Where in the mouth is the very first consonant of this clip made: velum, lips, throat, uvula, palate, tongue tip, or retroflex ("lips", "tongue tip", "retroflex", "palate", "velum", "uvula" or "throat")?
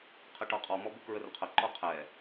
uvula